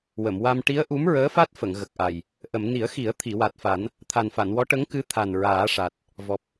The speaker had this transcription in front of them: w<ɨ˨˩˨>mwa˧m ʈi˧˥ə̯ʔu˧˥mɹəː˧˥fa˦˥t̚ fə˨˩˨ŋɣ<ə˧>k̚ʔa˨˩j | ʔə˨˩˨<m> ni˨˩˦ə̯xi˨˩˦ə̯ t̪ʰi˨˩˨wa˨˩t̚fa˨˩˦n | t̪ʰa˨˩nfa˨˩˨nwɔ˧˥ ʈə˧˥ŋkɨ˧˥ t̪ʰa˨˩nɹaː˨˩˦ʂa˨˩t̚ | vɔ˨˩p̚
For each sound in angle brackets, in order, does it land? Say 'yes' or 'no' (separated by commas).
no, no, yes